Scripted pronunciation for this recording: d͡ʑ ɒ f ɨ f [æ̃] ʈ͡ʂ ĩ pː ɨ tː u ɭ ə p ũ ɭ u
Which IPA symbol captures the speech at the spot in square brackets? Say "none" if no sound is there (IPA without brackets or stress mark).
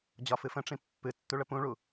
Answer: ə̃